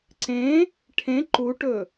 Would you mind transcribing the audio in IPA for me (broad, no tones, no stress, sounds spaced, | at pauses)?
ǀ ẽ | ʈʰ ẽ ǃ u ʈ ɵ